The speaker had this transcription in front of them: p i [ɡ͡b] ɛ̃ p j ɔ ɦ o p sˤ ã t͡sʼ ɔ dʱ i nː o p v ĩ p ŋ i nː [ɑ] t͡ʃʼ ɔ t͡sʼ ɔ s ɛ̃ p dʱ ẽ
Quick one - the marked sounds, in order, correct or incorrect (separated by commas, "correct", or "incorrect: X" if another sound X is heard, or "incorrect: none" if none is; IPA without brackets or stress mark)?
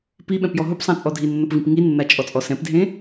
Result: incorrect: ɓ, incorrect: a